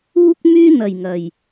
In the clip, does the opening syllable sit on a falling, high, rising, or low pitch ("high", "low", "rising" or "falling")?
high